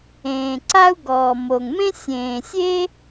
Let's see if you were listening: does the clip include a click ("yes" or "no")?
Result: yes